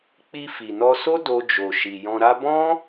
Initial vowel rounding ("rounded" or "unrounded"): unrounded